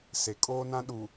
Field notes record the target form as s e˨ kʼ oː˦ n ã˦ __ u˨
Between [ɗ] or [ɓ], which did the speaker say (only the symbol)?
ɗ